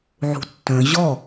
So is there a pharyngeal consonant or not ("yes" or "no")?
yes